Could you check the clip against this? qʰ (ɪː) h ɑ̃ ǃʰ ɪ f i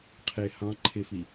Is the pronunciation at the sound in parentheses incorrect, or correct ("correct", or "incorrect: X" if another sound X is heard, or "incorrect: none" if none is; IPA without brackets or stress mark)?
correct